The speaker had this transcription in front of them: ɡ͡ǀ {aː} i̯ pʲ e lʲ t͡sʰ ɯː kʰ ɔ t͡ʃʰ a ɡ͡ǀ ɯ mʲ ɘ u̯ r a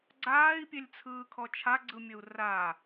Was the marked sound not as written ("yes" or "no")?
no